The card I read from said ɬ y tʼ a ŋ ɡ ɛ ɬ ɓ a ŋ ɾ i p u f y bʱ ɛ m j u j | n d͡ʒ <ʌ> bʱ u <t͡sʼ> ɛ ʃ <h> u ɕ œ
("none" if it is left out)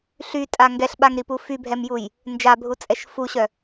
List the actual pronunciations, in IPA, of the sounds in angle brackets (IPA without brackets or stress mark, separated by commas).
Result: a, t͡sʼ, f